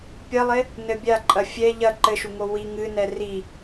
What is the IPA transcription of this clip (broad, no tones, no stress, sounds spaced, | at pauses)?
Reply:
pʲ ɐ lˠ e | n ɘ bʲ a ǃʼ ɐ fʲ ɛ ʎ ɐ ǃ ɘ ʃ u ŋ o w i ŋ ɨ n ɛ r i